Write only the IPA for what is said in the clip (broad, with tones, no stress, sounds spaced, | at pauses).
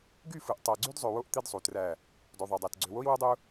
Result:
ɡ y˦˨ f ɯ˨ ʔ tˤ æ˨ ɡ͡ǀ y˦ d zˤ ø˨ w o˦ ʔ t̪ i˦ d sˤ u˨ t r æ˦˨ | d o˨ ðˤ ø˨ dˤ æ˨ t ɡ͡ǀ ø˨ w o˦ i̯ w o˦ dˤ u˦